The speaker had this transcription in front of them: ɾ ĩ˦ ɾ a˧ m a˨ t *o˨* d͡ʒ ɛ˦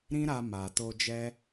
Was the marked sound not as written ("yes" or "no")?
yes